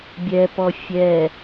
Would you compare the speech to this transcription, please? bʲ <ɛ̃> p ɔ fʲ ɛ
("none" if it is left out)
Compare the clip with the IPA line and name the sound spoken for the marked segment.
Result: ɛ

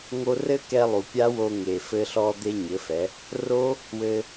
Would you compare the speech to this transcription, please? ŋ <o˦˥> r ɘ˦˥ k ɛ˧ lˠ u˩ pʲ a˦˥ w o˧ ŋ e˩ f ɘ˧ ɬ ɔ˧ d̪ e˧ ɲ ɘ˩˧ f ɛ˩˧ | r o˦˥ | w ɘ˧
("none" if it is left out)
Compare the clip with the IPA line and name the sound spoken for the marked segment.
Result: o˧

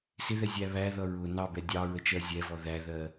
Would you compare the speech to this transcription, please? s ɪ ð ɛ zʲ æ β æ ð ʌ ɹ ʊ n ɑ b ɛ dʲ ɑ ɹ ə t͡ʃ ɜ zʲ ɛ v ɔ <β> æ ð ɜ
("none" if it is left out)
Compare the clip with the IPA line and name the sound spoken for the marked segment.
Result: ð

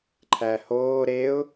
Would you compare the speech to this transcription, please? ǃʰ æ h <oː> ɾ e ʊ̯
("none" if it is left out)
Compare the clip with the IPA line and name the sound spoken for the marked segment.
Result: oː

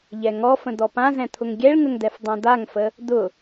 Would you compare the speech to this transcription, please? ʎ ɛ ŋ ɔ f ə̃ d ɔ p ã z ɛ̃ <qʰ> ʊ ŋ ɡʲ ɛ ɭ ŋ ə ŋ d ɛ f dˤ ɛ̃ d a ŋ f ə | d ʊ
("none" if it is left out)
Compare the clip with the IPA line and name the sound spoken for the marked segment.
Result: t̪ʰ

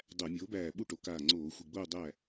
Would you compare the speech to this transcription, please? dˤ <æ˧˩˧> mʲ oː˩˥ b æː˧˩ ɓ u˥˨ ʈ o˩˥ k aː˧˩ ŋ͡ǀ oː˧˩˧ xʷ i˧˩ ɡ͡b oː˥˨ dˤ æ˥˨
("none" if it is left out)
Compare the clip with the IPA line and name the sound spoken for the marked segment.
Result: æ˧˩˧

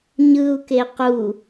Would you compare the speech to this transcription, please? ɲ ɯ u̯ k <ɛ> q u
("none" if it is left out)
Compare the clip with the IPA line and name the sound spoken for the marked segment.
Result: e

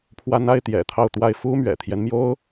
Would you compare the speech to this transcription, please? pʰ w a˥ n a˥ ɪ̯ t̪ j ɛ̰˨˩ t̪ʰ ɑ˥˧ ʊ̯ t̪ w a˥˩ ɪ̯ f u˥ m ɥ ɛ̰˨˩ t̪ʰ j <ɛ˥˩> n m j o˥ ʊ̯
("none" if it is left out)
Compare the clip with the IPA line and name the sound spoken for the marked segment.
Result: ɛ˦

